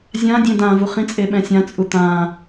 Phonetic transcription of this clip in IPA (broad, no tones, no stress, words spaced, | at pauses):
zʲãdʲẽ dãvuχ ĩt͡sʼe ɓɛ̃sʲãt͡sʼu t̪ã